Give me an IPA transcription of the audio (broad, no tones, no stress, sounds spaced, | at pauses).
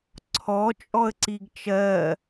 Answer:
ǀʰ ɔ t͡ʃʼ ɔ ə̯ ǀ i ɡ t͡ʃ ɜ